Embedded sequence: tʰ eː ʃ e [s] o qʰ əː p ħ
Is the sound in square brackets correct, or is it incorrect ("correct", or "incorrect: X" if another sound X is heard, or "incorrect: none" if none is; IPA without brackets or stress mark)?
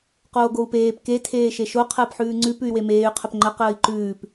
incorrect: ʃ